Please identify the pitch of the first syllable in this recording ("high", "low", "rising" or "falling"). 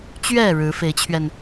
falling